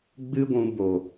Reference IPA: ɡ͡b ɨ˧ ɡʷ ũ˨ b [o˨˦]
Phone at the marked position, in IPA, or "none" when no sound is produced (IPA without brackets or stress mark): o˨